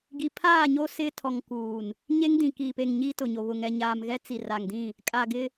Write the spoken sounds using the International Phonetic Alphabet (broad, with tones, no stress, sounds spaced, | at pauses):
ɡ i˨ pʰ aː˦˨ ɲ o˦ s ɪ˦ tʰ ɔ˨ ŋ k uː˨ n | ɲ e˦ ŋ d ĩ˨ k iː˨ p e˨ ŋ ɲ iː˦ t ʊ˨ ɲ o˨ β ʊ˨ ŋ ɛ˨ ɲ aː˨ m ɣ ɛ˦ t͡s i˨ r a˨ ŋ d ĩ˦˨ | kʼ a˨ ɡ ɪ˦